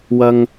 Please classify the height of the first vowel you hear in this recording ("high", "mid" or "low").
low